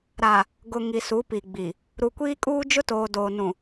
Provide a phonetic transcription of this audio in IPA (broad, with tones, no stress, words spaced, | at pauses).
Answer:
ɾa˨ | ɡʊ˨ ŋi˨su˨˦pi˨ɡ͡bi˨ | ɾu˨kʷiː˦kʼuː˦ d͡ʒʊ˦toː˨doː˨nũ˨